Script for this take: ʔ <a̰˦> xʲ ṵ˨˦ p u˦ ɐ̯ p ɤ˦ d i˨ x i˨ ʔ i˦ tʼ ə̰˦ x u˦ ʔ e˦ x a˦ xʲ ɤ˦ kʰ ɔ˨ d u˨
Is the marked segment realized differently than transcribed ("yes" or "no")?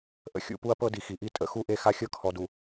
yes